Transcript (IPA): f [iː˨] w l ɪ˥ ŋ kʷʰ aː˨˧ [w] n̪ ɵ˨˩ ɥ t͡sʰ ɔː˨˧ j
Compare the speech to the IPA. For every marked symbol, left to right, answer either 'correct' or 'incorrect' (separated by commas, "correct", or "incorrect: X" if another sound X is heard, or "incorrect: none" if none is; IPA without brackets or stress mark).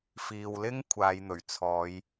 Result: correct, incorrect: j